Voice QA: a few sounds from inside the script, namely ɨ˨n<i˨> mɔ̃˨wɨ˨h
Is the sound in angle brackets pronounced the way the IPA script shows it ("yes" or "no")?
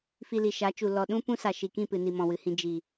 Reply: yes